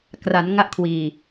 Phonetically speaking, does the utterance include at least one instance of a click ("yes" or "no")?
no